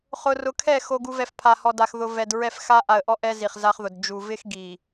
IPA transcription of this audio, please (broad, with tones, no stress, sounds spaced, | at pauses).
χ ʊ˨ r ʊ˨ kʰ ɛ˦˨ x o˨ ɡ u˨ v ɛ˨ f pʰ a˨ h ɔ˨ d a˨ x ð ʊ˨ v ɛ˨ d ɹ ɛ˦˨ f x a˦ ʔ a˨ ə̯ ʔ ɔ˦ ʔ ɛ˦ z i˨ χ z a˦ χ ð ʊ˨ d d͡ʒ u˨ v ɪ˦ x ɡ i˨